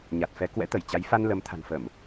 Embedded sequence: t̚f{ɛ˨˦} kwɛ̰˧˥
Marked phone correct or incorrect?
correct